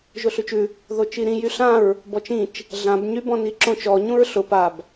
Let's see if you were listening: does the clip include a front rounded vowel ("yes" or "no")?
yes